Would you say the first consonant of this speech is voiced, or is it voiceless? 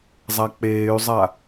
voiced